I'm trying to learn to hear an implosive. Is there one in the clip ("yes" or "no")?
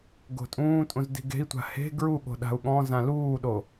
yes